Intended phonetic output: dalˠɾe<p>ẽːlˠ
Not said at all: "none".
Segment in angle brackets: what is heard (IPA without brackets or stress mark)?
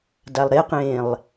q